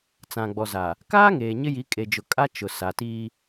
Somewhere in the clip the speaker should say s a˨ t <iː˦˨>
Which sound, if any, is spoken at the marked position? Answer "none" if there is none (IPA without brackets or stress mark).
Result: iː˦